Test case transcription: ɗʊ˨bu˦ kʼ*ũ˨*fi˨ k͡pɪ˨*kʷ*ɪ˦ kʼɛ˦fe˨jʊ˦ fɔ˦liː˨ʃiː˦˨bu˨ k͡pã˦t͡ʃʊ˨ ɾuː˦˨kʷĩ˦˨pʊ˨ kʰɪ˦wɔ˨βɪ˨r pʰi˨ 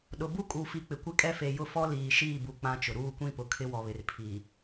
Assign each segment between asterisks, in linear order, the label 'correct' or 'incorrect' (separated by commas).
incorrect, correct